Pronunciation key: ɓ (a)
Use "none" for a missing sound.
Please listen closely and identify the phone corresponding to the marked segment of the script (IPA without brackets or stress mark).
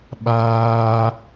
aː